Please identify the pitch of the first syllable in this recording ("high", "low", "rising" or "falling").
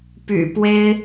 low